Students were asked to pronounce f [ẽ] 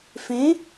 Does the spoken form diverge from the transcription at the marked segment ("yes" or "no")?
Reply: no